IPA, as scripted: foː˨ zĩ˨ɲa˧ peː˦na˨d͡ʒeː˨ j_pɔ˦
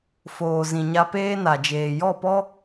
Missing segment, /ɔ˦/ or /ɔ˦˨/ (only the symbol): ɔ˦˨